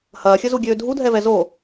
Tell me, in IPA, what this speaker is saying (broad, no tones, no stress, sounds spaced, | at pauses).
h ɐː xʲ ə z u ɡʲ øː dʱ u dʱ ɛ v ɛ z o